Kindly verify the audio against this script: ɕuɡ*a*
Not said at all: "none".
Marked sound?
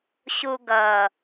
ʌ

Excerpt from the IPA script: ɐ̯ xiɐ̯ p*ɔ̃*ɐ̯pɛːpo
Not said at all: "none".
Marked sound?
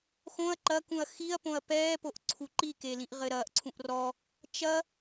õ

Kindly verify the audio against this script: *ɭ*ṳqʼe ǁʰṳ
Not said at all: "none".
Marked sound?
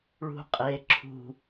ɭ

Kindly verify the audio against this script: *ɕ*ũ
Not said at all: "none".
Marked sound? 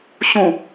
ɕ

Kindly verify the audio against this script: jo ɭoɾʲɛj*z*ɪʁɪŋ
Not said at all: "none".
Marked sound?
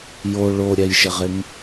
ʃ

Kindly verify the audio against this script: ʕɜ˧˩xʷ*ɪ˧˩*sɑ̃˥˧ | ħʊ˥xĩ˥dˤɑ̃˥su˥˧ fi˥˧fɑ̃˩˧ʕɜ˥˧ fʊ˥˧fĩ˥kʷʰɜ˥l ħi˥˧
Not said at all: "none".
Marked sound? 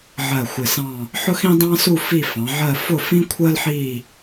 ɪ˧˩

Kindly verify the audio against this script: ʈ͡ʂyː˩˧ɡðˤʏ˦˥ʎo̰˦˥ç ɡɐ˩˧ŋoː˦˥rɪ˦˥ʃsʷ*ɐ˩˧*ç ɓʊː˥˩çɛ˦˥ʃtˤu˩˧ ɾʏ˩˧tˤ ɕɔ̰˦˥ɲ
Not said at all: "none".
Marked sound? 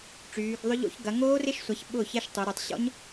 a˩˧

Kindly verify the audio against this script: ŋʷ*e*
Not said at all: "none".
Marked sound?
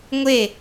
e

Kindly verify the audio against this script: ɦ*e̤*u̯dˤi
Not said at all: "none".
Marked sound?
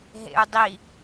ḛ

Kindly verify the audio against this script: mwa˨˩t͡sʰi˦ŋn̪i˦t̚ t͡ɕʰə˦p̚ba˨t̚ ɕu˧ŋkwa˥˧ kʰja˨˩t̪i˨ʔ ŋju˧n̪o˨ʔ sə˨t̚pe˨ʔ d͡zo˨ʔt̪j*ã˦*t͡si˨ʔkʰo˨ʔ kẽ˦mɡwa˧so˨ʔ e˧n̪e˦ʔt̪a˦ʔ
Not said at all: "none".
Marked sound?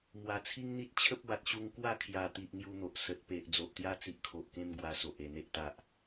a˦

